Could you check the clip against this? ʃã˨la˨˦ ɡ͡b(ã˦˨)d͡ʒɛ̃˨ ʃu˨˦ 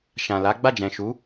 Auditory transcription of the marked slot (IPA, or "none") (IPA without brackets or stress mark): a˦˨